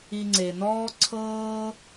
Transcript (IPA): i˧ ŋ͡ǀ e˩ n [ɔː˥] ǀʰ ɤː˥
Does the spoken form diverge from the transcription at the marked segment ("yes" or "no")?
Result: no